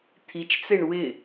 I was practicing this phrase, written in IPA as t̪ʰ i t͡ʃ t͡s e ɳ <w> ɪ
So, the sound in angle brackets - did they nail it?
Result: yes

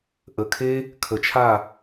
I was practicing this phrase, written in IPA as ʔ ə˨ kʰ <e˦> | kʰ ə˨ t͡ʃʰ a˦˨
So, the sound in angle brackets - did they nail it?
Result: yes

